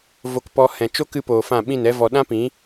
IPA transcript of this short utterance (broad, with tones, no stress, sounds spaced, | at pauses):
v o˧ k p ɔ˧ h ɛ̃˨ t͡ʃ o˦ k ɨ˧ p oː˨ f ã˦˨ ɓ ĩ˦˨ n ɛ˦ v ɔ˧ ɗ ã˦ p ĩ˨˦